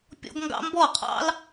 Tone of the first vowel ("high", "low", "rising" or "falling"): high